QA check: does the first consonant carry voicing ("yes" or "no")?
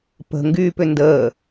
no